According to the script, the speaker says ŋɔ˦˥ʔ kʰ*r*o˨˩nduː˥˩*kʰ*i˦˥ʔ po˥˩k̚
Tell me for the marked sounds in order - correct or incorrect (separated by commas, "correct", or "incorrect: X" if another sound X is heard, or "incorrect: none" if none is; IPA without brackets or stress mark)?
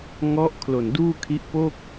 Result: incorrect: l, correct